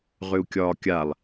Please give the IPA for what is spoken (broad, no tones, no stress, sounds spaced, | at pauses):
ʁ ʏ u̯ kʲ ɒː kʲ a lˠ